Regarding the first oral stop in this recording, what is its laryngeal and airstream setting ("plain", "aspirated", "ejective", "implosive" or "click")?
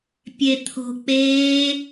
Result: plain